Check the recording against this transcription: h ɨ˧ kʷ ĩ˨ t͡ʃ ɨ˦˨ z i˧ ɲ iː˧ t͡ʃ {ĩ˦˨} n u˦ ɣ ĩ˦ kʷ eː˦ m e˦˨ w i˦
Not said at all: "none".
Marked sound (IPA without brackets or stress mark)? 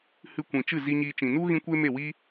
ĩ˨